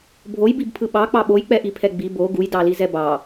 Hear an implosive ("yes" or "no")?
yes